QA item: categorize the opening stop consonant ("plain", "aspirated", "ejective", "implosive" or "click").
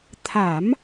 aspirated